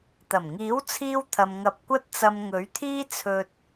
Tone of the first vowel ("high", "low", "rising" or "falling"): low